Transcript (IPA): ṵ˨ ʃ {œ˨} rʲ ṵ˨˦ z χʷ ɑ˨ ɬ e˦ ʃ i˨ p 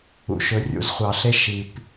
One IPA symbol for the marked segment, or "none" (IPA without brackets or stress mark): ɵ˨